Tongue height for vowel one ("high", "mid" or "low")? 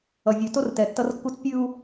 mid